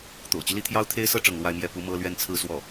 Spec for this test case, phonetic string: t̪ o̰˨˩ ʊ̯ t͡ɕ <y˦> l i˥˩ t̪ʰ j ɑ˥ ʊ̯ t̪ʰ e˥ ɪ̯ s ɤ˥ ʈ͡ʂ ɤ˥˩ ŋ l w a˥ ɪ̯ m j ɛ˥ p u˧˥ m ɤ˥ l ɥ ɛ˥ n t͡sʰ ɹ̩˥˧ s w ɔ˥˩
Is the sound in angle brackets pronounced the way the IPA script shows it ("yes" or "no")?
yes